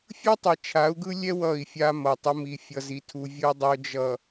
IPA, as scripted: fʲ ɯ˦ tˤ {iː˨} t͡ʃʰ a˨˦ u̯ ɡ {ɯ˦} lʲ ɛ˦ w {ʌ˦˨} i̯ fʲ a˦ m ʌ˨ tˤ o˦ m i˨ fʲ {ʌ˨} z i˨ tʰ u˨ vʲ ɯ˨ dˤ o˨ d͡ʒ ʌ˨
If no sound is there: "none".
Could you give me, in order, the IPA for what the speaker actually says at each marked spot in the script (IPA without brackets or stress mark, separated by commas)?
i˨, ɯ˦, ʌ˦˨, ʌ˨